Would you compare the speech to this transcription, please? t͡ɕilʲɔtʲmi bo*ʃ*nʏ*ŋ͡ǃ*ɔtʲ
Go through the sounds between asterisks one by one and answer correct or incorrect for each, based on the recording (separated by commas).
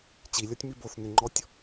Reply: incorrect, correct